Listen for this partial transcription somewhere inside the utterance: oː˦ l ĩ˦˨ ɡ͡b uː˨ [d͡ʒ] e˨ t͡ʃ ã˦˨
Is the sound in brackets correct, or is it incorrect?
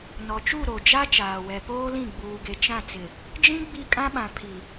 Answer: incorrect